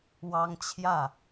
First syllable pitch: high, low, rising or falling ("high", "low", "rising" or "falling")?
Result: high